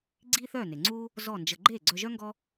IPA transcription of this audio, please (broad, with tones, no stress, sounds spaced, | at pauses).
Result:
ɡ͡ǀ iː˥ θ œː˥˩ n e˩ ŋ͡ǀ uː˥ | z ɔ˥˩ n d͡ʒ ə˧ ɡ͡ǃ eː˥˩ ɡ͡ǀ œ˧ ʒ œ˥ ŋ ɡ ɔ˥